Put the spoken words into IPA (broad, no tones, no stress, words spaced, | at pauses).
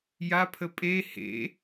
japʰə pʼe hḛ